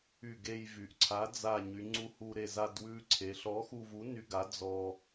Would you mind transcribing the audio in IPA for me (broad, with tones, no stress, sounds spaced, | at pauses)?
y˧˩ ɡ e˧ j v y˩˧ ʔ ǀʰ a˨˥ d͡z a˧˩ ɲ y˩˧ ŋ͡ǀ u˧ h u˧ ɾ e˧˩ z a˧ d w ʉ˧ ǀʰ e˩˧ ɬ ɔ˨˥ x u˧ v u˨˥ n y˧ ɡ a˨˥ d͡z ɔ˧